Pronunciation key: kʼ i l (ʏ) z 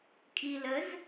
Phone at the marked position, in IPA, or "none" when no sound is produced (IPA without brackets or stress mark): ə